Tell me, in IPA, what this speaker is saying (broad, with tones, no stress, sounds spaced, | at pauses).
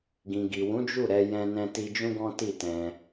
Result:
ɡ ĩ˨ ɡ i˨ w ũ˨˦ d͡ʒ u˦˨ ɾ ɛ˧ j ɛ̃˧ n ɛ̃˧ t i˧ d͡ʒ ũ˦ ɡ ɔ̃˦ t i˦˨ t ɛ̃˧